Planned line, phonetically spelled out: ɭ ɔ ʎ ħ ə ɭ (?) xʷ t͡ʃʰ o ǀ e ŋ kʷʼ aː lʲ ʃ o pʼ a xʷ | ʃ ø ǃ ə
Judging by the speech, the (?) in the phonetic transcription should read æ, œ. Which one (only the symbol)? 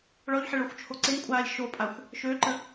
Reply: œ